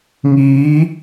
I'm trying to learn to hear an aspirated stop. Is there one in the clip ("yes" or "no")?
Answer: no